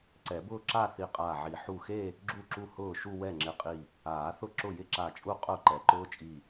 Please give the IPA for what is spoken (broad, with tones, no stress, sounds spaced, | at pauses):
ǀ ɛ˨˩˦ b ʊː˥˧ ǁ a˥˧ θ i˧˩ qʼ aː˧˩ ʕ i˨˩˦ ħ u˧˩ x e˥˧ | ɡ͡ǁ u˥˩ ǁ u˥˩ h ʊː˥˩ ʃ u˥˧ w ɛ˥˩ ŋ͡ǁ ɪ˧˩ qʼ i˧˩ | aː˨˩˦ θ ʊ˥˩ ǁ ʊ˥˩ j ɪ˥˧ ǁ a˧˩ t͡ʃʼ u˥˩ qʼ ʊː˥˩ ǃ ɛ˨˩˦ ǃ ʊː˦˥ t͡ʃʼ i˧˩